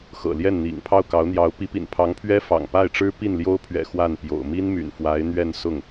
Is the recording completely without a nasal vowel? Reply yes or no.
yes